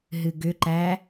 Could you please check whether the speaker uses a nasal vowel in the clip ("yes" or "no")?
no